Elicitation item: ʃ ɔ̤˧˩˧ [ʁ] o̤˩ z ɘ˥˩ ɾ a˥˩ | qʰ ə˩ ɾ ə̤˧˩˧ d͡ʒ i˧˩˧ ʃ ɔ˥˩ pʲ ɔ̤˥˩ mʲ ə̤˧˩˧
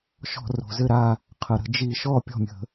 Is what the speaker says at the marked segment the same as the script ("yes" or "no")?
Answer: no